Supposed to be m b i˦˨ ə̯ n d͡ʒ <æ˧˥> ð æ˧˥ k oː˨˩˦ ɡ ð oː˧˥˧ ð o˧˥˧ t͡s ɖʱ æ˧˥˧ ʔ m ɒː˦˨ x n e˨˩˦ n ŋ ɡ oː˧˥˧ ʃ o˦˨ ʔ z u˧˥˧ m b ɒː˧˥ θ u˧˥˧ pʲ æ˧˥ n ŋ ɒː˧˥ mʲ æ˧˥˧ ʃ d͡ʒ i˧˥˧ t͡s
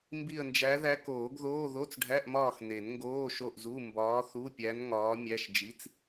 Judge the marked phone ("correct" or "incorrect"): correct